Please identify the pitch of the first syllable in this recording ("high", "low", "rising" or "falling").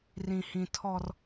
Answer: low